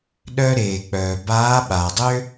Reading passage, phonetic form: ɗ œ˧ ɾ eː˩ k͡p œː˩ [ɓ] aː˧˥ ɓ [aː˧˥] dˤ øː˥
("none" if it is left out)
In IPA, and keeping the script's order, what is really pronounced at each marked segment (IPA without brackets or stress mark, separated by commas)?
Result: b, aː˩